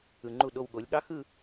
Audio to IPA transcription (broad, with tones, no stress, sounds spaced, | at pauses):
ɯ˨ ŋ͡ǃ u˥˩ ɗ o˥˧ w ɠ o˨˥ lʲ ɠ ɑ˦˥ x ɯ˥˧